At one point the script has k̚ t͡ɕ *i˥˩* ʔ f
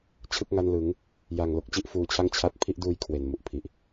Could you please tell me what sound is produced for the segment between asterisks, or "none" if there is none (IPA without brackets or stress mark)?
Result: i˥˩